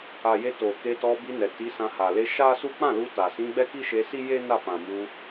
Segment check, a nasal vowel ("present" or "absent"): present